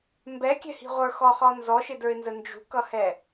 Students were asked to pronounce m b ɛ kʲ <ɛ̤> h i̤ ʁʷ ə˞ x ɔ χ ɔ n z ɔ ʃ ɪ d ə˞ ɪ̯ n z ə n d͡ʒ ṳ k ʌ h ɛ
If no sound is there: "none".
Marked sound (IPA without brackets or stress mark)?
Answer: ɛ̤